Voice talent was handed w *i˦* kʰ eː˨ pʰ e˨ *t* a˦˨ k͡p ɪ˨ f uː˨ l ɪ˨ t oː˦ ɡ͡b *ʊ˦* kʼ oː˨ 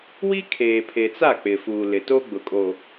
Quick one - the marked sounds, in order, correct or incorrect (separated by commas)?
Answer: correct, incorrect, incorrect